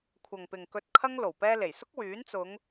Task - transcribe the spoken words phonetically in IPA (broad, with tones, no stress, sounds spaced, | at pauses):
kʷʰ ɐ˨ ŋ p ɪ˨ ŋ k ɵ˧ t̚ kʰ ɐ˥ ŋ l o˨˩ w p ɛː˧ l e˨˩ j s ʊ˥ k̚ w yː˨˥ n t͡s ʊ˨˧ ŋ